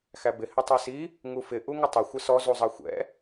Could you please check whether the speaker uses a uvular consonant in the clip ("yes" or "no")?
no